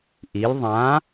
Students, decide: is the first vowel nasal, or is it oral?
oral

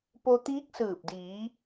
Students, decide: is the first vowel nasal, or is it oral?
oral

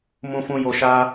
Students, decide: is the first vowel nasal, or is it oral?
nasal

